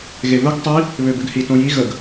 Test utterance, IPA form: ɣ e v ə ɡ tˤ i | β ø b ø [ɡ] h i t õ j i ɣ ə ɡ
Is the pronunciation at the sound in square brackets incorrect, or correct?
correct